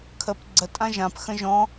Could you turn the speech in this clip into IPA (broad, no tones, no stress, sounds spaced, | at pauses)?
kʰ ə p ɡ͡ǀ ə tʼ ã ʒ ã p x ə̃ ʒ ɔ̃